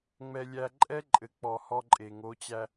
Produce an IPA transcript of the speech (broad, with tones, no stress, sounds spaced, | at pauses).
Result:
ŋ͡m ɛ˨ lʲ æ˨ ǃʼ ɛ˦ ǃʼ ɘ˨ k͡p ɔ˨ h ɔ˦ ǃʼ e˨ ŋ o˨˦ t͡ɕ æ˦